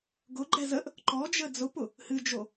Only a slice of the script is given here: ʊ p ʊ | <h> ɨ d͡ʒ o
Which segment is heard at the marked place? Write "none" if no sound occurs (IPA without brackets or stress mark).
h